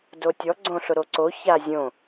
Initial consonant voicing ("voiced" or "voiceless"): voiced